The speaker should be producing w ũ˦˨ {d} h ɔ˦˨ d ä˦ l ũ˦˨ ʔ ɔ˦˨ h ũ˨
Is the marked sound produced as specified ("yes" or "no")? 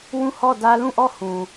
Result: no